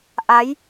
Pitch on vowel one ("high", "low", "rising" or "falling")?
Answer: rising